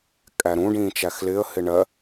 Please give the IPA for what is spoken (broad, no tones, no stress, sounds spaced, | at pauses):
kʼ æ ɾ ũ ɖ ĩː t͡ʃ æ x l ɪː ə̯ h ɪ ɳ ɜ